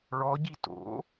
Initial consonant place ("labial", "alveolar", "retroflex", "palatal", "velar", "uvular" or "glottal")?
retroflex